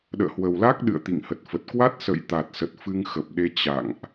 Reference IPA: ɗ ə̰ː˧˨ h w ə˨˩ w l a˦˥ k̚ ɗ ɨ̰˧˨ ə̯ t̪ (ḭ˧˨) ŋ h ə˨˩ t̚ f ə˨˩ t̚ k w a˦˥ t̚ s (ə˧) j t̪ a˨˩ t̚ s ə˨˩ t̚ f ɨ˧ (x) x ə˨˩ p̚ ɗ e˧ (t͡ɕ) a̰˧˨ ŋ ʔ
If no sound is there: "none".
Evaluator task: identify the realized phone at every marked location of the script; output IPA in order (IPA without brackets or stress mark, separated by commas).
ḭ˧˨, ə̰˧˨, ŋ, t͡ɕ